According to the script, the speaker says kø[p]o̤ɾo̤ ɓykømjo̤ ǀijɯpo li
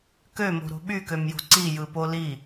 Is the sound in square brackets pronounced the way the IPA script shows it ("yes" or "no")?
no